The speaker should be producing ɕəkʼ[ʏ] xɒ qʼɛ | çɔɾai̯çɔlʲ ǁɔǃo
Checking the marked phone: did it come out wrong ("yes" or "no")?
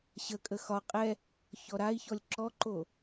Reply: yes